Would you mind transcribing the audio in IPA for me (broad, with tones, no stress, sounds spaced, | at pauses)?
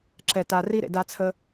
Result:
ǁ ɛ˩ t a˩ r i˧ ɾ ḛ˩ d a˧ t͡sʰ ə˧